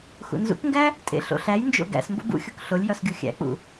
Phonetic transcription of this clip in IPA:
x ṵ n z ṵ k ŋ ɡ æ | tʼ ḛ ɬ o̰ ɬ æ j n d͡ʒ o̰ ɡ æ̰ s m b o̰ b ṵ xʲ o k ɬ o lʲ j ɒ s ɡʲ u xʲ æ̰ k͡p ṵ

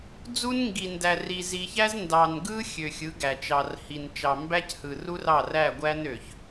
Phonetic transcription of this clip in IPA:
d͡z u˦ n ŋ ɡ i˨ n d æ˨ r i˨ z i˨ ç æ˦ z n d ɑ˨ n ɡ ɯ˦ xʲ ø˨ xʲ ɯ˨˦ ɡ æ˨ t͡ʃ ɑ˨ r h i˨ n t͡ʃ ɑ˨ m b æ˦ c h ɯ˨ r u˦ r ɑ˦˨ r æ˦˨ ɡʷ æ˦ n ø˨ ç

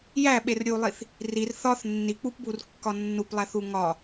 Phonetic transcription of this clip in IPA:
j æ ɓ e r ɾʲ u lˠ i θ | r i r θ ɒ θ nː i k͡p u p b u r kː ɒ nː u p lˠ æ θ u ŋ ɒ

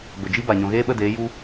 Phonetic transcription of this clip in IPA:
b ə˨ d͡ʒ i˦ b a˨ ɲ ɔ̃˨ ɣ eː˦ ɓ ə˦˨ d eː˨˦ j u˦

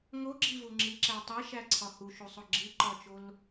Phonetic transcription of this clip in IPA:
ŋ o ɡ͡ǁ i v u ŋ͡ǁ i ǁ æ tˤ e ʃ æ ǀʰ ɒ h u ʃ u sˤ o ɡ͡ǁ i ǃ ɒ t͡ʃ o l

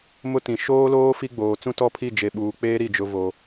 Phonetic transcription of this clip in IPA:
m ʊ˦ t ĩ˨ ʃ oː˦ l oː˦ f i˦ ɡ͡b oː˨ t͡s ũ˦ t ɔ˦˨ pʰ i˦˨ d͡ʒ e˨ ɓ uː˨ k͡p eː˦ ɾ i˦˨ d͡ʒ ʊ˦ v o˦

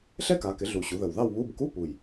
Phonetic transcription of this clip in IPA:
ɬ ɛ˥ k a˩˧ k ɪ˩˧ ɮ u˨˩ ɕ u˩˧ ð ə˨˩ w ð ɑ˥˧ w β u˧˥˧ b k u˧˥˧ p u˨˩ j

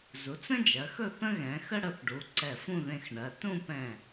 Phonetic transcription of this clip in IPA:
z u˩˧ t͡s ə̃˥ d͡ʒ ɜ˩˧ x ɵ˥˧ θ ə̃˥ ɣ ɛ̃˩˧ x ə˥ ɽ ə˩˧ θ ɖ u˩˧ ǀ ɛ˧˩ f ũ˥˧ ð ẽ˧ x ɳ ɜ˩˧ t ũ˥˧ p ɛ̃˧˩

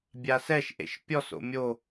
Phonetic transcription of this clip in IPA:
bʲ a s ɛ ʃ ʔ ḛ ʃ pʲ ɔ s o̰ mʲ o

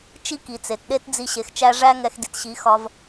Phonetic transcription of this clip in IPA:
t͡ʃ i˦ k i˨ t͡s e˨ t ɗ e˦ t d͡z i˧ ɕ e˨ x t͡ʃ æ˧ ʐ æ˦ ŋ ɛ˧ x d i˨ t ɕ i˨˦ x ɒ˧ v

